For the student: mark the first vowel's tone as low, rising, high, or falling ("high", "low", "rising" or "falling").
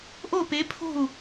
falling